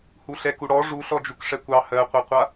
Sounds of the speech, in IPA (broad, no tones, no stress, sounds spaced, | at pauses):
h u ɬ ɛ k u ɽ ɔ ʐ u ɬ ɔ d͡ʒ u k ʂ ɛ kʷ ɑ h ɜ qʷ ɛ qʷ a